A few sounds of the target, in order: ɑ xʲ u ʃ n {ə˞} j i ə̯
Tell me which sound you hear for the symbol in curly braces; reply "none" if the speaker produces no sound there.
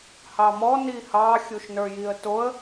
ə˞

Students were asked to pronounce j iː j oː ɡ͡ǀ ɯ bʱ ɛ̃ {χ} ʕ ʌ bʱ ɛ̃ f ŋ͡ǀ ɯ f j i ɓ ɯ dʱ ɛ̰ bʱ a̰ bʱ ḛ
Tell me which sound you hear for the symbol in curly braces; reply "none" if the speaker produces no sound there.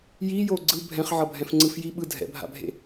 χ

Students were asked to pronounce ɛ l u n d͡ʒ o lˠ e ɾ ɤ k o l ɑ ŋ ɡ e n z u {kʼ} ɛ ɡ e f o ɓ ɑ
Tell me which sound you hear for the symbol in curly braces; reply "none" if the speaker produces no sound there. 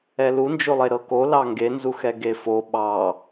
x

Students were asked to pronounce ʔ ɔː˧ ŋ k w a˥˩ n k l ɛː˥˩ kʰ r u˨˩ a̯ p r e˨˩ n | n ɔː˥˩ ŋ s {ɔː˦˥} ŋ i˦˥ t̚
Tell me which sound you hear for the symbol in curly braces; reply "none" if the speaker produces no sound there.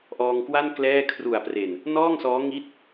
ɔː˦˥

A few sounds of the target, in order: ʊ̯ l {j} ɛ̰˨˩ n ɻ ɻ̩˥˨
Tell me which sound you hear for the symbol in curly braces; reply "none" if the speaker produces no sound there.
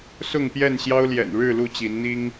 j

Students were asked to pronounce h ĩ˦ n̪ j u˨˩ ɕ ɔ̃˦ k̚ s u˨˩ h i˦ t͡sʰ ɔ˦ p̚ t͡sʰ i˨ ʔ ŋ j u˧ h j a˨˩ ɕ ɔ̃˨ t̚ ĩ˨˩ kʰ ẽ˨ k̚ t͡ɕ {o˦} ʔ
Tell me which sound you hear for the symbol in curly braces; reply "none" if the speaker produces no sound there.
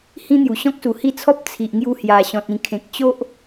o˦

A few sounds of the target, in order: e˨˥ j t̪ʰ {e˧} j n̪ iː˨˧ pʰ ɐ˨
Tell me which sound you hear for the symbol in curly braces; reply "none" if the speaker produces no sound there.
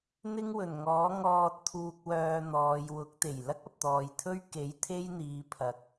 e˥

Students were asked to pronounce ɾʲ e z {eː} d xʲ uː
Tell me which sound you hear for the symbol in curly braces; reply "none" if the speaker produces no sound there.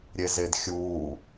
e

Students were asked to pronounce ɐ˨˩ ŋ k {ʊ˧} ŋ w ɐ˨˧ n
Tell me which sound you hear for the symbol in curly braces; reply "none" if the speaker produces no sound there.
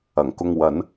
ʊ˧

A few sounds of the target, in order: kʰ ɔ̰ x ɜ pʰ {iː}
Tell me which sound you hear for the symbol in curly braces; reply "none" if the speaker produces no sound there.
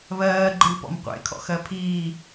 iː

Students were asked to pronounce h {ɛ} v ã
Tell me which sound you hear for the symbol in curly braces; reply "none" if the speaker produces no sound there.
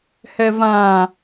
ɛ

